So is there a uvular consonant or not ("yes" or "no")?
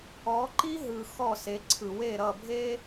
no